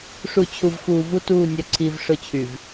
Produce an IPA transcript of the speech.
ʂu˨t͡ɕʰu˨vxuː˨ vu˦tuː˦˨ nʲœ˨ǀʰiː˨v ʂʊ˦t͡ɕʰy˨v

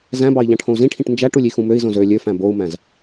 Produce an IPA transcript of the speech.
zæ̃bɑi̯ ʎɑ̃ʈʰõu̯zĩʈʰĩʈ nd͡ʒæʈulʲ ixũmøi̯zõz ø lʲøfæ̃ bou̯mæ̃z

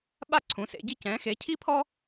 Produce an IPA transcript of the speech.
ɓa˥ǀʰũ˨˥sḛ˨˥ɟi˥ cɛ̃˨˥xe˨˥cʰi˥pʰɔ˥

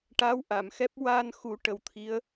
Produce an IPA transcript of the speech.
ʈa˧˥wʔa˨˩˨mxɛ˦˥p̚ wa˧nxu˨˩˦ ʈə˨˩wt̪ʰi˧˥ə̯

